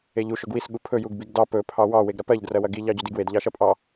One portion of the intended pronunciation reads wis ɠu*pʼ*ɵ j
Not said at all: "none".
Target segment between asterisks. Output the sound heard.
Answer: pʰ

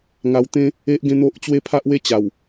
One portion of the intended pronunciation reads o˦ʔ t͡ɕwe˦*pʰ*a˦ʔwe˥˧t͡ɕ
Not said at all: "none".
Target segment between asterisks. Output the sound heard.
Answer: pʰ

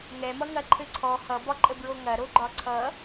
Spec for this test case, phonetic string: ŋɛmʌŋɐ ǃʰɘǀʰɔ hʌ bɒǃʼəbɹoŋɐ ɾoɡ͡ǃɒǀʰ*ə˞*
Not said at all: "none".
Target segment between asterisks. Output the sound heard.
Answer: ʌ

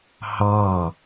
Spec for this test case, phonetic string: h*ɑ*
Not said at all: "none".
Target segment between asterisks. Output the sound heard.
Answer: ɑ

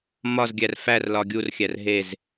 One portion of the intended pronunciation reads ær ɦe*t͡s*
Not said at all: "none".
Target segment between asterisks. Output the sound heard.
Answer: z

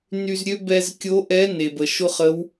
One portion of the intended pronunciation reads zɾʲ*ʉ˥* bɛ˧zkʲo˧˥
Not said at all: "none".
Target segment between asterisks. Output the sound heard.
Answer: ø˥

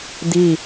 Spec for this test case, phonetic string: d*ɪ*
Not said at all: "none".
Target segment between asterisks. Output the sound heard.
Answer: i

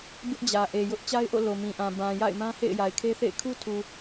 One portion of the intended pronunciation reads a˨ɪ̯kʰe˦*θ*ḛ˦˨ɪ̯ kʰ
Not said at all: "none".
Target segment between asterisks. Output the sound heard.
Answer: θ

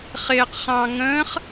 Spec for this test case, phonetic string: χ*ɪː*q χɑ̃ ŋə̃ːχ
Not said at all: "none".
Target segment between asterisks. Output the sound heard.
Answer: ɪː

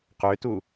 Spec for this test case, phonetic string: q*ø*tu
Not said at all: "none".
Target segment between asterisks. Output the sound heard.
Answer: ø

